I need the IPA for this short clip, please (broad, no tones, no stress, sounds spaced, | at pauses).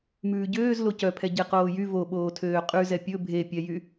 m ʉː ɟ øː z l o c œ pʰ ɛ ɟ e q oː j y v o ɓ oː tʰ øː qʼ ʉ z ɛ pʲ ɵ bʱ e pʲ ɛ j y